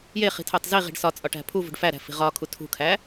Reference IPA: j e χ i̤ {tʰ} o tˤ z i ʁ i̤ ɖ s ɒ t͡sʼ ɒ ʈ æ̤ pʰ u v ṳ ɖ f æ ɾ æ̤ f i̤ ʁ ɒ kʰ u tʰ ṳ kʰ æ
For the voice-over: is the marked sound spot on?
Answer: yes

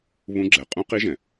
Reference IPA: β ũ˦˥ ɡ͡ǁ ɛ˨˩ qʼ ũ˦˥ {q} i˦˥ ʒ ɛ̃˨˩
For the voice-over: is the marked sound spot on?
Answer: yes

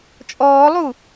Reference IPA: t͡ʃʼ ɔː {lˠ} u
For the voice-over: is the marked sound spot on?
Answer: yes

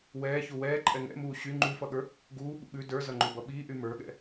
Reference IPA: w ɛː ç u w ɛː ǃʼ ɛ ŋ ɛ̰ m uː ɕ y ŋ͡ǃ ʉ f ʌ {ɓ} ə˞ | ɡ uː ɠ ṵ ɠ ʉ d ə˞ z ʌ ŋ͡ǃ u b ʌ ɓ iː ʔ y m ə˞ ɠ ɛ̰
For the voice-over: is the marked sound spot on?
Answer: no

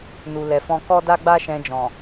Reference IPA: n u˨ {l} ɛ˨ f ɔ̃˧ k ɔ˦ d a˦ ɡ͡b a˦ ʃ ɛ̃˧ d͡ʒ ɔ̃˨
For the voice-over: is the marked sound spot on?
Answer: yes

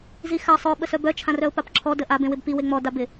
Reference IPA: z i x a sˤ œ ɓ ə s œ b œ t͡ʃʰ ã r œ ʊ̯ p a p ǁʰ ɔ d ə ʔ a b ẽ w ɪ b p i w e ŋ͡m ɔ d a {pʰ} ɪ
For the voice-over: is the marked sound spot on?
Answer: no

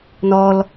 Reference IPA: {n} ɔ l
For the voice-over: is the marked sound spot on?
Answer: yes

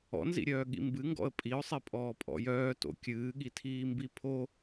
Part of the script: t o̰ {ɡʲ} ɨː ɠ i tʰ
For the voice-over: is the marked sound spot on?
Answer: no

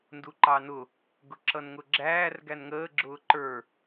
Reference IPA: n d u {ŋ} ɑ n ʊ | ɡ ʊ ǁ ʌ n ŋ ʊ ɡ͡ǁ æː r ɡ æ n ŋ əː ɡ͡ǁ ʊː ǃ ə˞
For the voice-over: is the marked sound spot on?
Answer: no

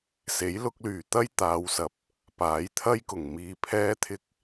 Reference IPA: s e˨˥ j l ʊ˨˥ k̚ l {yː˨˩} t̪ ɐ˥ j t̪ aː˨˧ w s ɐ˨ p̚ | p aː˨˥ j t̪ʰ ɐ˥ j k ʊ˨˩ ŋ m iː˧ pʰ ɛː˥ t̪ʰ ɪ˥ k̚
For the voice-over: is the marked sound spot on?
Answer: yes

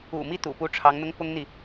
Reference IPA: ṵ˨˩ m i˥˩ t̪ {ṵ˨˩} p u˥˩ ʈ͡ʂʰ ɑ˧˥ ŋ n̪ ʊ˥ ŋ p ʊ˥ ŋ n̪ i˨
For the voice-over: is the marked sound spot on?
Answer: yes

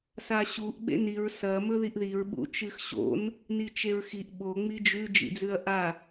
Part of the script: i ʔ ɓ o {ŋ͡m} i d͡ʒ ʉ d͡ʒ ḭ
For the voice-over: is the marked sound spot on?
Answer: yes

